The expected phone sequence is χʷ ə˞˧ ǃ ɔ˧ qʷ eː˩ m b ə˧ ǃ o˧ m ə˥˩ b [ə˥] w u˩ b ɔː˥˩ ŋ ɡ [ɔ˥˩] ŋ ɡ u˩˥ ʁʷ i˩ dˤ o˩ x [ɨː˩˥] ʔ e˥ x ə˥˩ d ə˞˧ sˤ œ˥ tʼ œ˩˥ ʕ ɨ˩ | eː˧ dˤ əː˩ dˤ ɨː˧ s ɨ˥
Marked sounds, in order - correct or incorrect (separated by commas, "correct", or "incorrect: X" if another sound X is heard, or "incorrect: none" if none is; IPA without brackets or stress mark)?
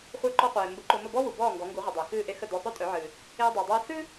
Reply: incorrect: ɔ˥, incorrect: ɔ˩˥, incorrect: ɨː˥˩